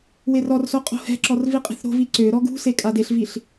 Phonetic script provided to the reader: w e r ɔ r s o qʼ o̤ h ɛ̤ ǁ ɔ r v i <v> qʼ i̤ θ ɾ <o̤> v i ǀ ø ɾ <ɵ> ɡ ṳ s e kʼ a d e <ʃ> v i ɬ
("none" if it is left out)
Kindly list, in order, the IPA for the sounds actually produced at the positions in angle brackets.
none, o̤, ɔ, ɬ

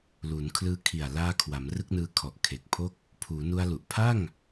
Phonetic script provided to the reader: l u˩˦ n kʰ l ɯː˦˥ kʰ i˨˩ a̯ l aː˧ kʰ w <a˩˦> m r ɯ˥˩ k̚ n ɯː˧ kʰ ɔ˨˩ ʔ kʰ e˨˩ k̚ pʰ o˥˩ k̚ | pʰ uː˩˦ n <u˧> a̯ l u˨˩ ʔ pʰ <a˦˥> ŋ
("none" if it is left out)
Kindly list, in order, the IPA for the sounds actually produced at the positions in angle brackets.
a˩˦, u˧, a˥˩

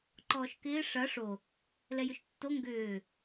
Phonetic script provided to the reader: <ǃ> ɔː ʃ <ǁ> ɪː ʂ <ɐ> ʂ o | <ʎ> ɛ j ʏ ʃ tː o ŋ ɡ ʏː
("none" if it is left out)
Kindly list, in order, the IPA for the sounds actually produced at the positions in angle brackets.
ǃ, k, ɐ, l

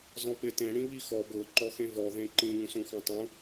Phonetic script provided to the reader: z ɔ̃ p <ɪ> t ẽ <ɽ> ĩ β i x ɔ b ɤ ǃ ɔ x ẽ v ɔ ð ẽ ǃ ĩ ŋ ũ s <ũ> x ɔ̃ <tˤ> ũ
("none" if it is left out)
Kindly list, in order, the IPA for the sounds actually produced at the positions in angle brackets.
ɪ, ɽ, ũ, tˤ

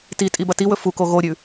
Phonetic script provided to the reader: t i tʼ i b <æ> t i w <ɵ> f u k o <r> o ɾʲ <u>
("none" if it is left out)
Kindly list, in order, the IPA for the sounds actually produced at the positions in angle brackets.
ɐ, ɵ, ɣ, ʉ

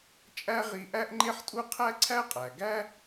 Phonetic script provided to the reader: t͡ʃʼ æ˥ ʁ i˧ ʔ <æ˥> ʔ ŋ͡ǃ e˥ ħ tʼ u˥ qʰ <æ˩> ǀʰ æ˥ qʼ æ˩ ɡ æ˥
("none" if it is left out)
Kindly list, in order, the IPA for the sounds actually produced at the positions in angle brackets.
æ˥, æ˥

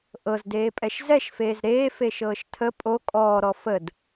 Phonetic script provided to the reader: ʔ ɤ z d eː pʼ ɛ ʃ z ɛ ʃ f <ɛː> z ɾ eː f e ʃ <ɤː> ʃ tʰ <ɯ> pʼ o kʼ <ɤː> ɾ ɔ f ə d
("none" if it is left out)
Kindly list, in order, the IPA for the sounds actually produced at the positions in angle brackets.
eː, ɤː, ə, ɔː

